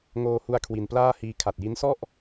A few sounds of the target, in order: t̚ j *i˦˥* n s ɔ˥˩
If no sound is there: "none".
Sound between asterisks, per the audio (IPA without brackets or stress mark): i˦˥